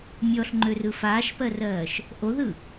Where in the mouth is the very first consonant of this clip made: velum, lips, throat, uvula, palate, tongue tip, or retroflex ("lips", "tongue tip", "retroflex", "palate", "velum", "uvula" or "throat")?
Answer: lips